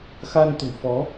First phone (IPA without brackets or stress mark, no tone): x